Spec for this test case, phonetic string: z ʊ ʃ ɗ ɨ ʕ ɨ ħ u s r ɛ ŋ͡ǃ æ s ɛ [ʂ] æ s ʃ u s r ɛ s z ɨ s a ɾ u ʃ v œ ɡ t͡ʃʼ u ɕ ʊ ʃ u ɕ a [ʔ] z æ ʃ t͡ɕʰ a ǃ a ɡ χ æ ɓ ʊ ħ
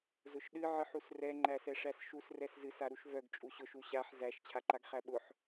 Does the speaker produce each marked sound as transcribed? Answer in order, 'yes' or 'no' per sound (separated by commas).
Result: yes, no